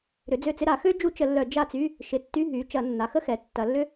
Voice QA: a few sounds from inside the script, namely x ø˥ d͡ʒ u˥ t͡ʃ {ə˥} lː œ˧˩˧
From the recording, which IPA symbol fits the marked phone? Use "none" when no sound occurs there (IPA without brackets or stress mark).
ə˧˩˧